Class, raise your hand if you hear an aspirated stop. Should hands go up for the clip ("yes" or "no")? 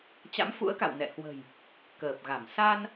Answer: no